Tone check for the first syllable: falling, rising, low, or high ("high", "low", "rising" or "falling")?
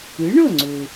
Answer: rising